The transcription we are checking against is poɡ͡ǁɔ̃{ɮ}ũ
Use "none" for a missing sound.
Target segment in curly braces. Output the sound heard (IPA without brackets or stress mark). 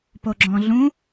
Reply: ɮ